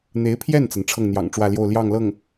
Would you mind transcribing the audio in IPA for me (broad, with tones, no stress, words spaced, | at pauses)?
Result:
n̪e˧˥ɪ̯pʰjɛ˥˩nt͡sa˩n ʈ͡ʂʰɤ˥˩ŋn̪jɑ̰˨˩ŋʈ͡ʂwä˥˧ljo˥˧ʊ̯ ljɑ˥˧ŋlɤ˥˩ŋ